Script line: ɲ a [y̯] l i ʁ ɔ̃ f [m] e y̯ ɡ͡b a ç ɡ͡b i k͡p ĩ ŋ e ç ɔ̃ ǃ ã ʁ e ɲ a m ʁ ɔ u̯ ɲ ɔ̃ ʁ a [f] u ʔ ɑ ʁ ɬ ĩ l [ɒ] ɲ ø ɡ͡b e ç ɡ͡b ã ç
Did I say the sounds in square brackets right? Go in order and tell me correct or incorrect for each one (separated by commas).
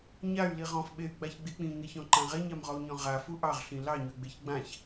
correct, incorrect, correct, incorrect